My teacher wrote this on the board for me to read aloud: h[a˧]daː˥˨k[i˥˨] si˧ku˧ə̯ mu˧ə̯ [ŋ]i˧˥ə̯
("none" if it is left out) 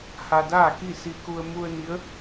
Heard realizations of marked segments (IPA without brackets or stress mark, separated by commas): a˧, i˥˨, n